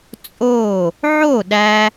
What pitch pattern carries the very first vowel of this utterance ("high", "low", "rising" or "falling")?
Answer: falling